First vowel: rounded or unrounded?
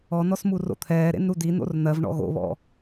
rounded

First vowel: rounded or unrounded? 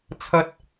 unrounded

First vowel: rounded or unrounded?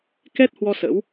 unrounded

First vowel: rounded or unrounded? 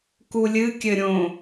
rounded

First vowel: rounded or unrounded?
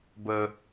unrounded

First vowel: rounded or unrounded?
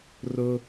rounded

